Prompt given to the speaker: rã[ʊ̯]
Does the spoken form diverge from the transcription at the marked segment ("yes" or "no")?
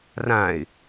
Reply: yes